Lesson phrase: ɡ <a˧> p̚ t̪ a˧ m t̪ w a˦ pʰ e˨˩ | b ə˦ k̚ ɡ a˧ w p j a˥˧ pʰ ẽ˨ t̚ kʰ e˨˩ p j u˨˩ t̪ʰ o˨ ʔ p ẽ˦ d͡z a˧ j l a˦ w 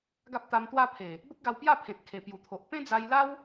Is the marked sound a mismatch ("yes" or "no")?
yes